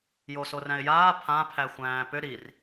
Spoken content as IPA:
j o s o r æ̃ ɪ̯ j aː pʰ ã pʰ æ xʷ æ̃ː p ʏ ɾ i r

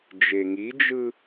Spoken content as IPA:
d͡ʒ e ŋ i d͡ʒ ɯ

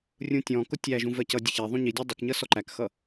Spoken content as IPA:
rʲ ũ tʲ ɔ̃ k ʊ tʲ æ ʒ ũ v ɜ c ʌ dʲ ə ç ɛ ðˤ ũ ɲ i dʲ ʌ dˤ ə k ɲ ʌ s ɔ ǃ æ k x ʌ

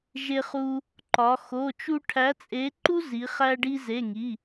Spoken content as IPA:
ʒ e˥ χ u˥ | ǃ ɒ˧˥ x o˧˥˧ t͡ʃ u˥ ʈʰ æ˧˥ t͡sʼ e˧˥ ǃ u˥ z i˧˥ χ æ˥ ɖ i˥ z e˧˥˧ ŋ i˧˥˧

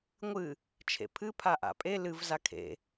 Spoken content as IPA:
ŋʷ ɨ | t͡ʃʰ ḛ pʰ ɨ pʰ a ʔ a̰ pʼ e l ɨ v z a kʰ ḛ

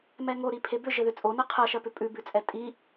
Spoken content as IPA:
m ɛ ŋ o ɾ i pʰ e b ʏ ʒ ɘ ð ʏ t͡sʼ o n ɜ qʰ ɜ ʃ ɜ p ʏ pʼ ʉ b ʉ t͡sʼ ɛ tʼ i

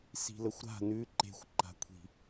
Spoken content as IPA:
s i̤ l ə xʷ ɾ a̤ n ʉ ǃ e̤ xʷ ǃ a̤ kʷʰ i̤

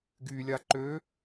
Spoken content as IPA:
ɡ y lʲ a ǃ ø

